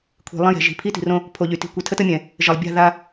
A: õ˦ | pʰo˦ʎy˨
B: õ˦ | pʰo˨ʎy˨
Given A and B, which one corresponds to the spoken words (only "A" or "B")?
B